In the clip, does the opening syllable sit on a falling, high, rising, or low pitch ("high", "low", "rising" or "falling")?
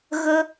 high